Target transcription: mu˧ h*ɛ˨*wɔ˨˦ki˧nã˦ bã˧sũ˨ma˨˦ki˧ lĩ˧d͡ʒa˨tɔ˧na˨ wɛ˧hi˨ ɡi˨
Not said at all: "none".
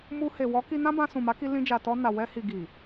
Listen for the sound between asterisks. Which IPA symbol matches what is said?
e˨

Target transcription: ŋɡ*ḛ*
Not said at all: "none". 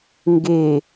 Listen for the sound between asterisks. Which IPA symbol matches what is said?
e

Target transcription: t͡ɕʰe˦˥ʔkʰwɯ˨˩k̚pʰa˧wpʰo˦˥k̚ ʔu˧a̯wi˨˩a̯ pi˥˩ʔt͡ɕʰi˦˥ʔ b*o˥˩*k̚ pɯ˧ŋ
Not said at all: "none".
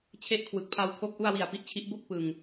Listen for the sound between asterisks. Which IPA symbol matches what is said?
o˥˩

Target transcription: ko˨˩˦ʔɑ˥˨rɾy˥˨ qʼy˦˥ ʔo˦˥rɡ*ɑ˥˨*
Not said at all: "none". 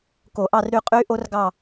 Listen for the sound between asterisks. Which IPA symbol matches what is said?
ɑ˥˨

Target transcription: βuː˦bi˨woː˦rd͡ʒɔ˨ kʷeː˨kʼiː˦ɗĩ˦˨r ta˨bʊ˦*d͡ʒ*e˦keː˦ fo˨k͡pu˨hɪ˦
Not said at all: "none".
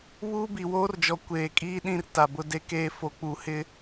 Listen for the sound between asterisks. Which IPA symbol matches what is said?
d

